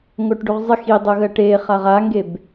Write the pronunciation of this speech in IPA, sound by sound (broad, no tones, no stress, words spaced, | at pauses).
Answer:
ŋoʈɖuʁzˤɪ xidˤoɣɜ ʈe χaʁaŋɡeb